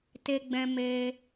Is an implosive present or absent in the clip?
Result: absent